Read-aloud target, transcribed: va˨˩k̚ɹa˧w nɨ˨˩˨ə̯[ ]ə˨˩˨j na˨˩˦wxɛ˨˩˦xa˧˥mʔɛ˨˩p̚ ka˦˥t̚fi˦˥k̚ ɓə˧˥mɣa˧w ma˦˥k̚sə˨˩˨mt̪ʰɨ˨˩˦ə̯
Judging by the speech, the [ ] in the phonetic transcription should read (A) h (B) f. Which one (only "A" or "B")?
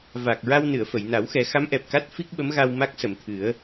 B